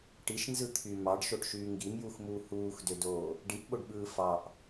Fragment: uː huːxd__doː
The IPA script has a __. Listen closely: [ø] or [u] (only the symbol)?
ø